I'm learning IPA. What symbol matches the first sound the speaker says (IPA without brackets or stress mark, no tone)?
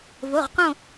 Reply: v